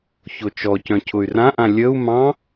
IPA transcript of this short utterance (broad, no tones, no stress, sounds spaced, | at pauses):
ç o t͡ʃ ɔ c œ̃ cʰ ʊ y̯ r ã ʔ ã lʲ ə u̯ m ɑ̃